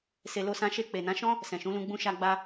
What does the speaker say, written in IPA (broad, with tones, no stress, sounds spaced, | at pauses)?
s e˧ l o˦ s ã˦ ʃ e˦˨ k͡p e˨ n ã˨˦ ʃ ɔ̃˦ | s ɛ̃˨ ʃ ũ˨˦ l ũ˧ ɡ͡b ũ˦ ʃ a˦ ɡ͡b a˦